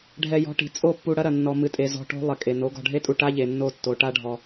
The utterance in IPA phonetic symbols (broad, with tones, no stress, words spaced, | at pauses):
ɖʱɛ˧ jɔ̤˧ʈi̤˨ t͡sʼo˦˨pːu˧ɽɐ˦ɾɐ˨ nːɔ˧ mɨ˨tʼe˨ zɔ̤˧ʈo̤˦ lˠɘ˨kʼe˨no˨˦ ɡɔ̤˨ɖʱe˦tʼu˨ ʈa˦ʎe˨nːo˧tːo˨ ʈa˧ɖʱɔ˨